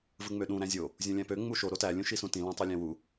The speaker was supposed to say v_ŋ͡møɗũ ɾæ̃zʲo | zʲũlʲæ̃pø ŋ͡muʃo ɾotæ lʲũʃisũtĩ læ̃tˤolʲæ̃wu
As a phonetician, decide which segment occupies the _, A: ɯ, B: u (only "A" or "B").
A